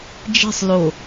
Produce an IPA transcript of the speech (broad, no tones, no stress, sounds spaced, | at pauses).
d͡ʒ i̤ sˤ l o